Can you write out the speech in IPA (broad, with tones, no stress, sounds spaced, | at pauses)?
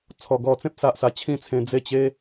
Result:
t͡sʰ ɔ˧ ɡ ɔ˧ t͡s ẽ˦ p̚ s a˦ ʔ s a˧ t͡ɕʰ ĩ˥˧ t͡sʰ ẽ˧ d͡z e˦ t͡ɕ e˦